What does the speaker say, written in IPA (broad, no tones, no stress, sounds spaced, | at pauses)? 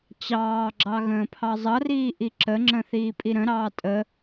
t͡ɕ ɑː ɡ͡ǁ ɑ ɣ ə̃ː pʰ ɑ zˤ ʌ r iː ʔ i ǁ ə ŋ͡ǁ ə̃ θ iː pʼ i ɾ ə̃ ɾ ɑː tʼ ə